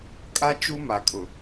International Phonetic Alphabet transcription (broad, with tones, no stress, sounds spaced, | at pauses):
kʼ a˦ t͡ʃ u˦ m a˨ kʼ ʊ˨